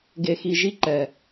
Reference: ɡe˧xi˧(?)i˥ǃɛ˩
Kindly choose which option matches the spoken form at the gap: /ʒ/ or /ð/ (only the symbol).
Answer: ʒ